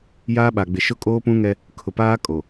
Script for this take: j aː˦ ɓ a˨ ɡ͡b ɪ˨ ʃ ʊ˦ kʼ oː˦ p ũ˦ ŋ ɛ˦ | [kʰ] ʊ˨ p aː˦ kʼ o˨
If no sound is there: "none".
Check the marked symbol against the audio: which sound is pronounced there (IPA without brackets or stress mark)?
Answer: kʰ